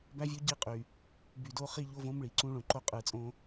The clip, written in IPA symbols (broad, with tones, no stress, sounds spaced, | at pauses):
b æ˦ vʲ o˦ ɟ i˦ qʼ y˨ | b y˨ d o˦ χ i˦ ʎ o˦ v õ˦ m ɭ i˨ ǀ ũ˦ ɭ õ˨ ǃ o˦ qʼ ɯ˨ t͡sʼ õ˦